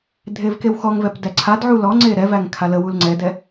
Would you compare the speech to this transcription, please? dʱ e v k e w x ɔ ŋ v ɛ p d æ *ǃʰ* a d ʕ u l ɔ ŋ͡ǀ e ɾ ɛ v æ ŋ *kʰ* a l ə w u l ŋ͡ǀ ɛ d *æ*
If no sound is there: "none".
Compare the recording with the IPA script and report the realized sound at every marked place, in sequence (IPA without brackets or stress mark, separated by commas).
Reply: ǀʰ, kʰ, ɛ